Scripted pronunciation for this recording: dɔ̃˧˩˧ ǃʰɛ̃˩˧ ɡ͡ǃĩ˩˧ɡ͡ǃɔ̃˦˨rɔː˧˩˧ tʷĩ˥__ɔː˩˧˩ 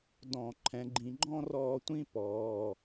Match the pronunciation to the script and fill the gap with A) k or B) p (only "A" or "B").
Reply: B